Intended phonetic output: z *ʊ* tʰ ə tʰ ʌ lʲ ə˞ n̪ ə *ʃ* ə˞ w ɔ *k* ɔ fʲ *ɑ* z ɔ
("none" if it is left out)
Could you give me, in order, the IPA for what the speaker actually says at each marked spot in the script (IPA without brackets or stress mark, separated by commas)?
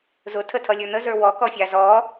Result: ʊ, z, k, ɑ